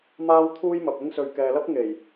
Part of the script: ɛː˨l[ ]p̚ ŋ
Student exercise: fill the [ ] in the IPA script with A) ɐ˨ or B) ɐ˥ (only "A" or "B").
B